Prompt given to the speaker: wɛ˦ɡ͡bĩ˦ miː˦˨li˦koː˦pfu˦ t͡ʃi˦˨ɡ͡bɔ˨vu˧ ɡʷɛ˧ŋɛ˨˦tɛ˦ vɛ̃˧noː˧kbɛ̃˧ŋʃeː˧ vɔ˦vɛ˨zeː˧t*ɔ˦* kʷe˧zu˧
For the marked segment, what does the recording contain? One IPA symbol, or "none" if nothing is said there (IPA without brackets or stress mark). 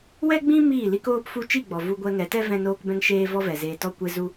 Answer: ɔ˦